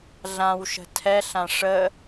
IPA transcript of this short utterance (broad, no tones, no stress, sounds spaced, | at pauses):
ɮ ã w ʃ ə̤ tʰ ɛ ɬ ã ʂ ə